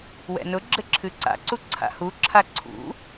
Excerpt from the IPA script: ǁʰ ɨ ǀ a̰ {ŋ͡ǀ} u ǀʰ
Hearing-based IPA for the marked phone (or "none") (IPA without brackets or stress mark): ǀ